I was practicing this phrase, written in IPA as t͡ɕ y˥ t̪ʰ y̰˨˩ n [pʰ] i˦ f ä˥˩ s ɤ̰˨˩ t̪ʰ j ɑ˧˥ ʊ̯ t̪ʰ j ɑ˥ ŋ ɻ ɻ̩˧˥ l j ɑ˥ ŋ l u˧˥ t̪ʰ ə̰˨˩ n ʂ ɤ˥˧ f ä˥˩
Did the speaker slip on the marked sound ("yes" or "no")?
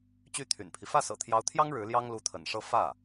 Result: no